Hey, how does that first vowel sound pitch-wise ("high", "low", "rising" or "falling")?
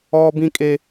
high